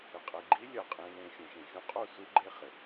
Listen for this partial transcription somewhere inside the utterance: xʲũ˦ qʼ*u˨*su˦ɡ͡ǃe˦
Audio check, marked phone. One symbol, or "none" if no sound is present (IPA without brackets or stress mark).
u˦˨